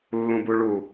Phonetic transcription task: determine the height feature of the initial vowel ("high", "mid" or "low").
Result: high